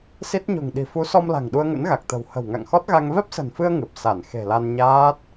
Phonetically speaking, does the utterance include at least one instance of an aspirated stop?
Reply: no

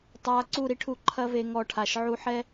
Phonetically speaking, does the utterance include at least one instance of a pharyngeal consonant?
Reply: yes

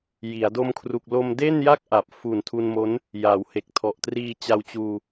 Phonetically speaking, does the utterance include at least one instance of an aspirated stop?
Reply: yes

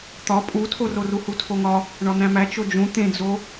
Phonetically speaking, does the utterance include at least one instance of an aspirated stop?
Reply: yes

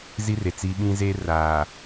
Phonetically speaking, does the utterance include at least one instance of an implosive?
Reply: yes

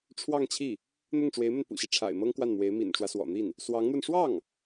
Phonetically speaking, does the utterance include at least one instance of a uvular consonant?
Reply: no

